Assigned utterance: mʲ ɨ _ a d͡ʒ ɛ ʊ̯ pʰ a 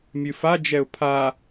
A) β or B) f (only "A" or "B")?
B